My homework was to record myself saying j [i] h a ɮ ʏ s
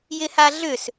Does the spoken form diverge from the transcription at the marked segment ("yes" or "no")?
yes